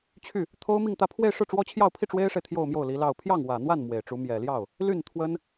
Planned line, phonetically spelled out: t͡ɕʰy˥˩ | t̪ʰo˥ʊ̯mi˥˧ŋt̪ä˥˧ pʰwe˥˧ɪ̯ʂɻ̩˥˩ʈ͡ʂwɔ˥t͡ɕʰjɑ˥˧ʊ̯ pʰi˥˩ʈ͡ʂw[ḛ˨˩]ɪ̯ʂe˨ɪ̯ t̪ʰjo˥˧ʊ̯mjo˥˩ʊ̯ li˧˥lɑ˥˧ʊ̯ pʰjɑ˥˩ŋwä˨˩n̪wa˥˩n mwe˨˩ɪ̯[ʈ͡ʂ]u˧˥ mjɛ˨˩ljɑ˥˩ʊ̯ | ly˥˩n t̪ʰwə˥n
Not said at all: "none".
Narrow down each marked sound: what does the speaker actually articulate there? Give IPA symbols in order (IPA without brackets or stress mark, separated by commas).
e˥, ʈ͡ʂ